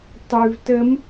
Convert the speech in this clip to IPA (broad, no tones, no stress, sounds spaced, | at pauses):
tˤ ʉ v t ə m